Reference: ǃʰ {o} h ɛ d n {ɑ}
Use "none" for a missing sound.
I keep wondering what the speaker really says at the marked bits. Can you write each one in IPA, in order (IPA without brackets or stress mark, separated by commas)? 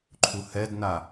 u, a